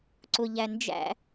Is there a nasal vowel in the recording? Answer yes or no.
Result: no